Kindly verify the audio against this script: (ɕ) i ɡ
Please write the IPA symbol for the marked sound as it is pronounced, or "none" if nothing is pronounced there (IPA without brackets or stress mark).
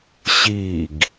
ɕ